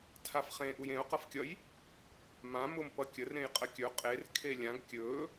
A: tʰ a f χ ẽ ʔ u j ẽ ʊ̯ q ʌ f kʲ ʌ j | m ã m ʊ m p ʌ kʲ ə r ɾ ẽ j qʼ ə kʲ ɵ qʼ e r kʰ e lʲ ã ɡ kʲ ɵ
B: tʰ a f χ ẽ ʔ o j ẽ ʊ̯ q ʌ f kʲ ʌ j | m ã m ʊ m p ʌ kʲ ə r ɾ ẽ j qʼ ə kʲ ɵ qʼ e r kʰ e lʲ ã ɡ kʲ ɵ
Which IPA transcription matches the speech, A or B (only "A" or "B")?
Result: A